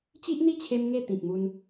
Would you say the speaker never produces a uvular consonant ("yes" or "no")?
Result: yes